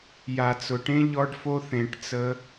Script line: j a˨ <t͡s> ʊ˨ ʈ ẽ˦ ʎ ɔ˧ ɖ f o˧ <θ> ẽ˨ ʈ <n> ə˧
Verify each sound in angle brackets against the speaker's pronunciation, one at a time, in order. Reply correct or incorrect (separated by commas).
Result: correct, correct, incorrect